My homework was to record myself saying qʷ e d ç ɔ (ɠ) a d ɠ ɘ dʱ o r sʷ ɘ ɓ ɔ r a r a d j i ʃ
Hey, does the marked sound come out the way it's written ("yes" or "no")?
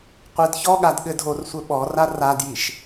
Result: yes